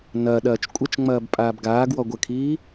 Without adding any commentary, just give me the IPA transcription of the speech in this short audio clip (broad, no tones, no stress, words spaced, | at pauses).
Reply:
nɐːɗɐːt͡ʃ kʷʼɐt͡ʃŋ͡mɐːb pʼaːbɡaːɡwɔ ɡʷəkʰiː